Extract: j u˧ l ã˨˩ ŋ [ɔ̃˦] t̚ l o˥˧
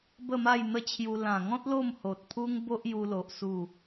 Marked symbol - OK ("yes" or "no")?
yes